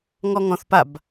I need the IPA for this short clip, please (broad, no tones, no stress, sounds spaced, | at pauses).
ŋ ɔ ŋ ɔ̃ θ p a b